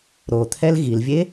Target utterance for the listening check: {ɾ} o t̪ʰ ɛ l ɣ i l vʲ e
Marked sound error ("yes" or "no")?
no